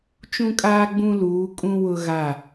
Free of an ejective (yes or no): no